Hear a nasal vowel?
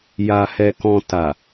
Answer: yes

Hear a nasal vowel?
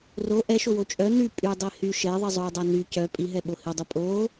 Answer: no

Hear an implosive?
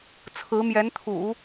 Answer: no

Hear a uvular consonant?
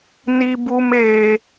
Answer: no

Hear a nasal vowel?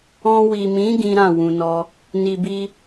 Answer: yes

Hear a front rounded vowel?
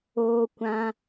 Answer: no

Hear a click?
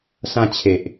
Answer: no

